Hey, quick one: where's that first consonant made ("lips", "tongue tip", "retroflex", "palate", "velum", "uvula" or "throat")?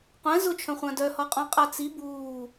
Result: uvula